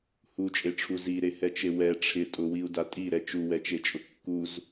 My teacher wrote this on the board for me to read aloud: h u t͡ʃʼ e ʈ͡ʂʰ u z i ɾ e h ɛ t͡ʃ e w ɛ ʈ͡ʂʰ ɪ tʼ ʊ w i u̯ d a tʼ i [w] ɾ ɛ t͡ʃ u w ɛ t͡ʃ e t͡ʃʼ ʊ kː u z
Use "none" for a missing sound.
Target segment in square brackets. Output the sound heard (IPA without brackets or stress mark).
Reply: none